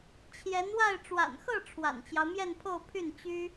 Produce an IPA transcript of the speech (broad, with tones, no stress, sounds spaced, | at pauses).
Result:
t͡ɕʰ j ɛ˧˥ n w a˥˩ ɪ̯ ʈ͡ʂ w a̰˨˩ n x ɤ˥˩ ʈ͡ʂʰ w a̰˨˩ n t͡ɕ j ɑ˦ ʊ̯ m j ɛ˥˧ n pʰ o˥˧ ʊ̯ pʰ y˥˩ n t͡ɕ y˥